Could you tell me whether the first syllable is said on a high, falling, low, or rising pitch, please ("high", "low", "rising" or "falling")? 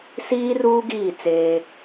high